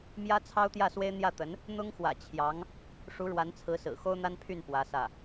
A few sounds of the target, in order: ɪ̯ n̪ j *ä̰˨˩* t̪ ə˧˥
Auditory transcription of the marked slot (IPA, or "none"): ä˥˩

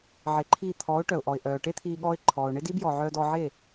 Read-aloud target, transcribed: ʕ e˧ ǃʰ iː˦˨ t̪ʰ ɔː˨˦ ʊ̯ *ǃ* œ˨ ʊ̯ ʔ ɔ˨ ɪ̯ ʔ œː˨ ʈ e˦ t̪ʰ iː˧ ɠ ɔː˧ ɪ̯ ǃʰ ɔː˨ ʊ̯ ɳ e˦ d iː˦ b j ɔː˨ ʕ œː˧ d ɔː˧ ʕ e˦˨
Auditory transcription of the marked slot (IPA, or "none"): ʈ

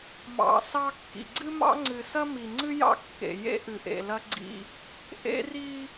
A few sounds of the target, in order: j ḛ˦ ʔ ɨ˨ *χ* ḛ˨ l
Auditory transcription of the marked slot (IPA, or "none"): ʔ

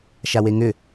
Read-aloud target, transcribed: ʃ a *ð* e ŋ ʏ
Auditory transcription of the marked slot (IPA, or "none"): w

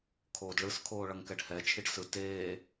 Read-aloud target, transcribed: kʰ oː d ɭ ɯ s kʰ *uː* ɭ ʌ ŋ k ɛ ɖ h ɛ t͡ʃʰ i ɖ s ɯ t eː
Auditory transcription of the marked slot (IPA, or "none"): oː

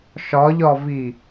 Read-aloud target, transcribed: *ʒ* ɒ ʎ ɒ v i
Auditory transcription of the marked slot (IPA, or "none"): ʃ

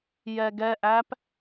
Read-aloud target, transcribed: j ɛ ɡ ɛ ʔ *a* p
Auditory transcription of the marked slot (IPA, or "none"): æ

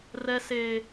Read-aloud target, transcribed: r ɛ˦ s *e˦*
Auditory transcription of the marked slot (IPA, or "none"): eː˦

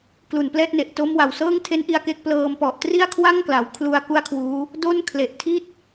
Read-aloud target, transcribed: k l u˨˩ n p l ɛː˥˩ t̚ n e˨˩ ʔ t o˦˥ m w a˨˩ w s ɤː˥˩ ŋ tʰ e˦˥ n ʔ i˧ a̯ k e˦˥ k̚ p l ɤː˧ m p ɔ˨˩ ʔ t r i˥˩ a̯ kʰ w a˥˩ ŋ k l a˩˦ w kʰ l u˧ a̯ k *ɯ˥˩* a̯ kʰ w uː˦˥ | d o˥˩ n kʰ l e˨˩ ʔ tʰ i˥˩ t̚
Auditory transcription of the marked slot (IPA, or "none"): u˥˩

